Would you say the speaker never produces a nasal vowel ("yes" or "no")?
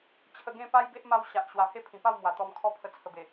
no